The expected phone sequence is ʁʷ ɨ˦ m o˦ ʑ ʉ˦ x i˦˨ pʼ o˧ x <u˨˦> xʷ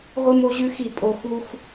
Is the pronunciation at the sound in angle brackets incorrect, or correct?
incorrect: u˦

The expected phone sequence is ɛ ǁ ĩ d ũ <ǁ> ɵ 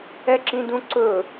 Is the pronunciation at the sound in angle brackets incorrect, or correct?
incorrect: ǀ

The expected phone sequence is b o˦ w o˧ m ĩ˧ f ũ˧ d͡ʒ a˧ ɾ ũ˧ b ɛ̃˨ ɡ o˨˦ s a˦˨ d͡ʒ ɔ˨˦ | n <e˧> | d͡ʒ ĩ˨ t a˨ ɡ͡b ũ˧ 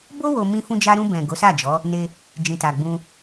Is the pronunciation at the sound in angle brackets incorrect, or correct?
correct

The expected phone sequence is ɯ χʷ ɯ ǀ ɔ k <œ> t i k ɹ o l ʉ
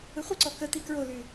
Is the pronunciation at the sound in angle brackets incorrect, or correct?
incorrect: ə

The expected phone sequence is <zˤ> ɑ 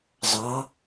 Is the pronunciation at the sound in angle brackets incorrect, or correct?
correct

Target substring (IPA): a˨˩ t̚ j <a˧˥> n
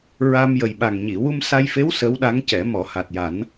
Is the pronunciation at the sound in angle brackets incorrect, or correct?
incorrect: a˨˩˦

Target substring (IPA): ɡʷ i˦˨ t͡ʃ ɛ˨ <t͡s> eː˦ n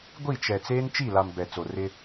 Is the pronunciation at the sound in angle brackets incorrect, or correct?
correct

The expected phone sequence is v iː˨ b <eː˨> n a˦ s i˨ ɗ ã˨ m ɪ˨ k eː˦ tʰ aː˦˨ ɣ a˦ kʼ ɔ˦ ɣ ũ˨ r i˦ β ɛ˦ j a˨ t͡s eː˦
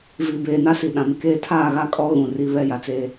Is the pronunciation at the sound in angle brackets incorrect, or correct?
correct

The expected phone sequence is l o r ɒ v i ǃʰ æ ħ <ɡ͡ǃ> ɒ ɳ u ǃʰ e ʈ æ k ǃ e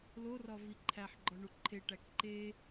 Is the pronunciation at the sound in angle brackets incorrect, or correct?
correct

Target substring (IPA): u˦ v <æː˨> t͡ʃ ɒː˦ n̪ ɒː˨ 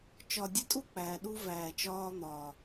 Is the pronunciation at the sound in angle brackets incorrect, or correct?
correct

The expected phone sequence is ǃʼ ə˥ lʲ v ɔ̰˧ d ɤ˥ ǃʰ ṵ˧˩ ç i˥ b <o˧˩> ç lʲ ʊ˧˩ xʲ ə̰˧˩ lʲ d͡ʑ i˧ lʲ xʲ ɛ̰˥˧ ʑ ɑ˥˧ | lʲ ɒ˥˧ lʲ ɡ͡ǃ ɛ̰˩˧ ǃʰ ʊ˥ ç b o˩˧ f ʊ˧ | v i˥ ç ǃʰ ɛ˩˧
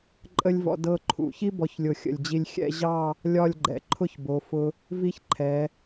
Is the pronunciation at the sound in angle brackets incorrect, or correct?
incorrect: ɔ˧˩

